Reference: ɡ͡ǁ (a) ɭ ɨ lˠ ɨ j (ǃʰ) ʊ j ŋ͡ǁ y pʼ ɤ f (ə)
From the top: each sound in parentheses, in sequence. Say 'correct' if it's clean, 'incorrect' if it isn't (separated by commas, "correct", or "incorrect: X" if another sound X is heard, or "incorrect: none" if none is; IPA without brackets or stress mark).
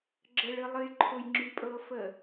incorrect: ə, correct, correct